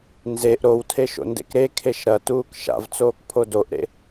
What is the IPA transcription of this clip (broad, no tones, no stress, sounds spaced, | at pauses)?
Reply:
n z e ʔ ɾ o w tʰ e ʃ o̰ n d ḛ k ɾ e kʰ e ʃ ɾ ɐ t uː k ʃ a̰ v t͡s oː k pʰ o d o ʔ ɾ ḛ